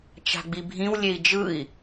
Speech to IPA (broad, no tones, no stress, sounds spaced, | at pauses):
t͡ʃ a̤ ɡ͡b i bʱ ĩ w lʲ e i̯ d͡ʒ ɯ i̯